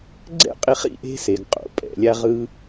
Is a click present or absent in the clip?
present